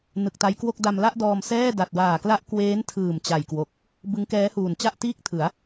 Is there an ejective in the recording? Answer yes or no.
no